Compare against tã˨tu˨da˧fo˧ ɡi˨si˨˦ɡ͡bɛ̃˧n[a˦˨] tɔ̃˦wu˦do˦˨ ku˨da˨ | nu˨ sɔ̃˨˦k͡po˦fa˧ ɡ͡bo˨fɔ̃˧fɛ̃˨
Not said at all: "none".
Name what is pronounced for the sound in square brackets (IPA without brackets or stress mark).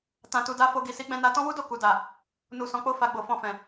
a˧